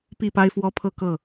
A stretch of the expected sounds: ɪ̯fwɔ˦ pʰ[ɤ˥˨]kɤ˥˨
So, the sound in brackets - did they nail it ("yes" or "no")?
yes